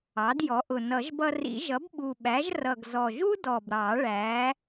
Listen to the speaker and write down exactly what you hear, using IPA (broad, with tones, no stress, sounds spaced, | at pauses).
ɑ˩˥ d j ɔ˩˥ ʔ ʊ˨˩ n ʌ˨˩˦ ʒ b ʌ˧ r ḭ˨˩˦ ʒ ʌ˩˥ b ɓ u˨˩ ɓ æ˩˥ ʒ r ʌ˨˩ ɡ z ɔ˨˩ ʒ u˥ d ɔ˨˩ b ɾ ɑ˨˩˦ ɭ æ˩˥